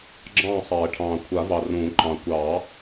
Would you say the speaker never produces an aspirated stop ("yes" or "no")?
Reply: no